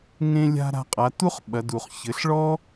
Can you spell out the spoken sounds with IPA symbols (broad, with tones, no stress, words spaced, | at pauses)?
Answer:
ŋẽ˧lʲa̤˧ ɾa̤˧qʼa˩˧ tu˥χ ɓɐ˩˧du˩χ çɘ˩˧ɬɭɔ˥